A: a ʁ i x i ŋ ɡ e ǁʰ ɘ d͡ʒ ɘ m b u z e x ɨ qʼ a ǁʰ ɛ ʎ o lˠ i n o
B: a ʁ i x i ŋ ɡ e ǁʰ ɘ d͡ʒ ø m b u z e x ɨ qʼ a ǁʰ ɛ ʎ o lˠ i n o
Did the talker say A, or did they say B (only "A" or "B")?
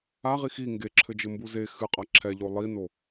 A